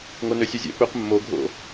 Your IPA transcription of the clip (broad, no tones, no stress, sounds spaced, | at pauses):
ŋ o n ø sʲ ø zʲ ɛ̰ p ø q mː o ɡʱ o̰